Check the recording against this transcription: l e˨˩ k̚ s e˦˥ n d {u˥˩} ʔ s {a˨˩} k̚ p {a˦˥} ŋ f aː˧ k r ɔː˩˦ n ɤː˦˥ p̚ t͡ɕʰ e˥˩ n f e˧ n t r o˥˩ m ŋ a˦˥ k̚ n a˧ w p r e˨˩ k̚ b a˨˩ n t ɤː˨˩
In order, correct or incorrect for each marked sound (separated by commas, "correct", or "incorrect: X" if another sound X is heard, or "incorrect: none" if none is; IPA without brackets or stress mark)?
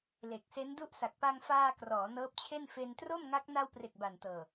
correct, correct, incorrect: a˧